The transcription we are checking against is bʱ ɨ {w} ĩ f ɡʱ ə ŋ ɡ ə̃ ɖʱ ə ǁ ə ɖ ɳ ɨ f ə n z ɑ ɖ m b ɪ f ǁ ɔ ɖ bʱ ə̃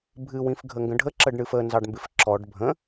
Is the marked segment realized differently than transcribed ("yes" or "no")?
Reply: no